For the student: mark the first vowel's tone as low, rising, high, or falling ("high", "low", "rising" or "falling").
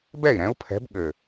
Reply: falling